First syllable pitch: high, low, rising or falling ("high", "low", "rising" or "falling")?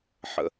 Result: low